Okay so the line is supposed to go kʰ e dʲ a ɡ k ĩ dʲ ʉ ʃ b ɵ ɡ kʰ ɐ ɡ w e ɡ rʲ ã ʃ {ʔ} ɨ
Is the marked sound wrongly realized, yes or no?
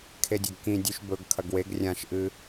no